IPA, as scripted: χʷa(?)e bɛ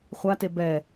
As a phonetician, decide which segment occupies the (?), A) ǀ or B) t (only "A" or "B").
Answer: B